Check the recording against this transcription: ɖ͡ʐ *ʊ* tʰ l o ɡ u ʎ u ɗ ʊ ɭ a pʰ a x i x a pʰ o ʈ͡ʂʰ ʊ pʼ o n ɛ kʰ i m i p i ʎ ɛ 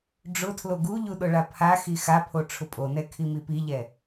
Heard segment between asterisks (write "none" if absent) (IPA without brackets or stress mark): ʊ